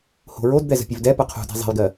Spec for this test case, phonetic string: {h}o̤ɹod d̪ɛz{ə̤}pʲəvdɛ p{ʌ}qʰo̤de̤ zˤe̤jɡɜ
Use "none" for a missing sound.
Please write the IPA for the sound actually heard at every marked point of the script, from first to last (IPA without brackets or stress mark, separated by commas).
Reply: h, ə̤, ʌ